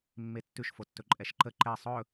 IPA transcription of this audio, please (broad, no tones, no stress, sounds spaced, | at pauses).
mː e tː ʉ ʃ f o tː ɵ ǃʼ ɛ ʃ ǃ ə ǃ ɛ sˤ ɵ